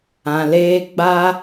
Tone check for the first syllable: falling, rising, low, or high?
low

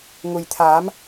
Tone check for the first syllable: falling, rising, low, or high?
low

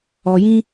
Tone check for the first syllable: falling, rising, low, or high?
low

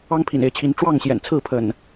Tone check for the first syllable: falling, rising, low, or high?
high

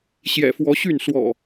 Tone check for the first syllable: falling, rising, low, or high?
low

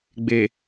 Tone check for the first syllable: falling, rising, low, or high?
low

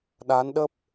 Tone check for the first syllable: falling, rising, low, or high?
rising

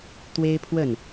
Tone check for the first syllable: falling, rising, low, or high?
high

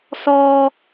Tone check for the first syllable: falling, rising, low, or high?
high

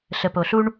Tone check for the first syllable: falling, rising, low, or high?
low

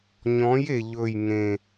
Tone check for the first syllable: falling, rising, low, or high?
rising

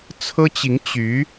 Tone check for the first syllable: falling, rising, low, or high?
high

